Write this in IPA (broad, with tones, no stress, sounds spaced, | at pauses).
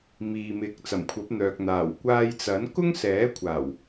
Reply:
m iː˨ m ɪ˨˥ k̚ t͡s ɐ˨˩ m kʷʰ ɐ˨˥ p̚ n̪ œː˨ k̚ n̪ aː˨˩ w kʷ aː˧ j t͡s ɐ˨˥ n k ʊ˥ ŋ s ɛː˨˥ kʷʰ aː˨˩ w